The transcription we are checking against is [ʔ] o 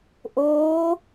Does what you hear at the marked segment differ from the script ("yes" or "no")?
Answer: no